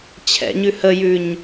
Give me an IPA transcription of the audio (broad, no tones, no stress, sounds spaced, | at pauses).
t͡ɕʰ ɛ̰ ɲ ʉ h ə j ʉ ɲ